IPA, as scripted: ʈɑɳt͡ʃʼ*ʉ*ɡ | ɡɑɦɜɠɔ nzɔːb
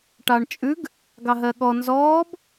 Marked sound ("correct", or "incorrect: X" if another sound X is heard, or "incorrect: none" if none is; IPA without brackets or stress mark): correct